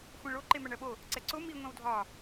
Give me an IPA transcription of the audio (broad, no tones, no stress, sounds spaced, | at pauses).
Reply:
xʷ ɛ̃ ɭ o ǃ e m æ ɳ ɜ ɓ o | ǀ ɛ ǀ o m i ŋʷ ɛ̃ w dʱ ɒ